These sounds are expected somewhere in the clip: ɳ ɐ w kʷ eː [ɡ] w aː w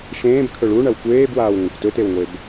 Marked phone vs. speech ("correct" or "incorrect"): incorrect